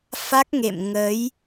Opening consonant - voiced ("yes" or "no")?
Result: no